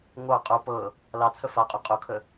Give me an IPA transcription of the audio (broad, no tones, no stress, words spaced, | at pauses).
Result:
ŋʷɑ qʼo pɤ | lɑt͡sʰə faqʼy qʼokʰə